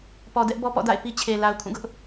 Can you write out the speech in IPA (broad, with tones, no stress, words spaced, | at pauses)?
pɔ˨dɛ˦ʔ bɔ˦pɔ̰˦˨ da̰˦˨ɪ̯ pi˦t͡ɕʰe˨ la˨ʊ̯kʰũ˦˨ɡʊ˦ʔ